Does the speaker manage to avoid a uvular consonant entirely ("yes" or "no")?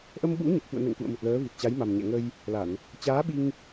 yes